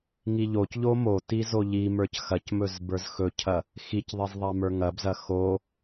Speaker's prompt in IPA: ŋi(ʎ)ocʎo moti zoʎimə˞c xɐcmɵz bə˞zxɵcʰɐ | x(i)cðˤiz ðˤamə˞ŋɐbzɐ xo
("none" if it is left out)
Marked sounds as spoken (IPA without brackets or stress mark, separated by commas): ʎ, i